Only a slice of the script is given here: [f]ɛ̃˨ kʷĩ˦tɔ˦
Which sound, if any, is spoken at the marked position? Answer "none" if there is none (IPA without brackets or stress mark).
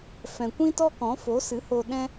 f